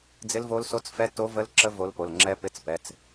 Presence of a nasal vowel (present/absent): absent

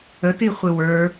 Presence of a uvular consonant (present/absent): present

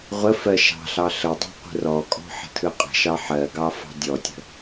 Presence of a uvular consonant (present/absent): present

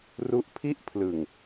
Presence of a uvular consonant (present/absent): absent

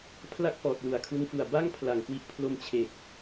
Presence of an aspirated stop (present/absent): present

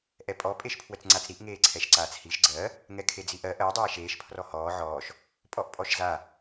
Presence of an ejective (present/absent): present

